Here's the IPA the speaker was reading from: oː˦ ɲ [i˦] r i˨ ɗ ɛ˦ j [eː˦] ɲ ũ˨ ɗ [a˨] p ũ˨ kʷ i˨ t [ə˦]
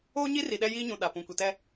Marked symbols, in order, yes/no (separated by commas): yes, no, yes, no